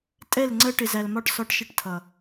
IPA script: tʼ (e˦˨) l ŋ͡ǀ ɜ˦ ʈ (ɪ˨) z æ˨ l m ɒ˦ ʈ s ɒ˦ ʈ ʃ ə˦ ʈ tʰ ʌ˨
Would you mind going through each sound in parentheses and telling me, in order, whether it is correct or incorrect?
incorrect: ɛ˦˨, correct

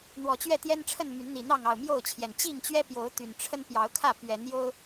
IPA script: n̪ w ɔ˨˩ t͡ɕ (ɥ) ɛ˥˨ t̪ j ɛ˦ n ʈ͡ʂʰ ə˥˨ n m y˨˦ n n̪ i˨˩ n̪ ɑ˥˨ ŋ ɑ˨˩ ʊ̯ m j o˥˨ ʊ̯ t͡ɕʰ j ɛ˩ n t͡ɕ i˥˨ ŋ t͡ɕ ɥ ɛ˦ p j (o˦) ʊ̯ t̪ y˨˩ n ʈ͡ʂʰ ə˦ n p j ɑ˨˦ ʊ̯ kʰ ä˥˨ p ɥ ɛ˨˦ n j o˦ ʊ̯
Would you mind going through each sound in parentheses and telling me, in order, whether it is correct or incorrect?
correct, incorrect: o˨˦

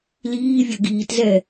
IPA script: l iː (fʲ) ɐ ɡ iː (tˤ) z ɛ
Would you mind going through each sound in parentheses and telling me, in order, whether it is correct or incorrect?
incorrect: vʲ, incorrect: t

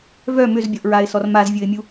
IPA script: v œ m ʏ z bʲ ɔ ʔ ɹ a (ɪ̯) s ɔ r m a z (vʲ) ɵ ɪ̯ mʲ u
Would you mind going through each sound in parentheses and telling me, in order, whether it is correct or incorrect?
correct, correct

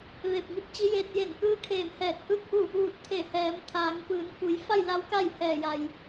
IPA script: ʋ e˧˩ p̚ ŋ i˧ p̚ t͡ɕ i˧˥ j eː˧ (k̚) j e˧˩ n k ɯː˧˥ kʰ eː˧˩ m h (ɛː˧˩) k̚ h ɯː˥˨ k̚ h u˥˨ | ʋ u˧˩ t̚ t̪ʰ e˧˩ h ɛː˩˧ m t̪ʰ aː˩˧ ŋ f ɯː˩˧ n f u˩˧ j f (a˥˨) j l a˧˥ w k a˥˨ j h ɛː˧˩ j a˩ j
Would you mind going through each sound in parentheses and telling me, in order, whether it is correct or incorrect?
incorrect: t̚, correct, correct

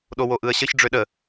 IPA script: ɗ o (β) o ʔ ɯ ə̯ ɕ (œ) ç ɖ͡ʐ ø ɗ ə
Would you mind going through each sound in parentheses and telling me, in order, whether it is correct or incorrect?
incorrect: w, incorrect: ə

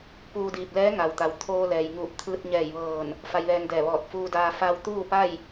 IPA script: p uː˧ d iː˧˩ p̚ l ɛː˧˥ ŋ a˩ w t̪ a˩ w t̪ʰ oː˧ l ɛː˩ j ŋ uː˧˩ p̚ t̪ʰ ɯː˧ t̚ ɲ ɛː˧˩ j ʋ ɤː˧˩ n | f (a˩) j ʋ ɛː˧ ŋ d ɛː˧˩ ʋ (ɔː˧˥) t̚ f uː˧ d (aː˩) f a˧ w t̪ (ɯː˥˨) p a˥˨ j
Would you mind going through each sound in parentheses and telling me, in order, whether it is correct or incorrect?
incorrect: a˧, incorrect: ɔː˧˩, incorrect: aː˧, incorrect: uː˥˨

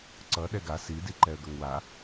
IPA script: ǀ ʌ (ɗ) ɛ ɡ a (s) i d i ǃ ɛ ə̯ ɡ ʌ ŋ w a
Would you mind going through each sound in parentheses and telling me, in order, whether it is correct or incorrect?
correct, correct

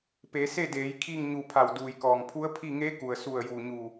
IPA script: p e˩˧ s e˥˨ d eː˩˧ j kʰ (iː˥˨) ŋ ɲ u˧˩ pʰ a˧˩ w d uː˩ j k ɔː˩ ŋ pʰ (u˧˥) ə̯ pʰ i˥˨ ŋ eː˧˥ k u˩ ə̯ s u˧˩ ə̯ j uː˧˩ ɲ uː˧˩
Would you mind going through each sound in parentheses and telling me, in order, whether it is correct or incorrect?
correct, correct

